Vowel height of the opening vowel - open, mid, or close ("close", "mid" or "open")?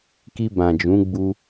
close